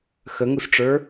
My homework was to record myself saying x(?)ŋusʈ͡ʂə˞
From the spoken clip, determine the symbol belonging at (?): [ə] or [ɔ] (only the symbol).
ə